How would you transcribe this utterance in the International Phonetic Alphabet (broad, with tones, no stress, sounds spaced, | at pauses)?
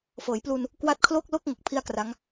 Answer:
f ɤː˩˦ j p l u˧ n | k w a˦˥ t̚ kʰ l o˥˩ k̚ l o˥˩ k̚ ŋ o˦˥ k̚ pʰ i˥˩ a̯ k r a˦˥ ŋ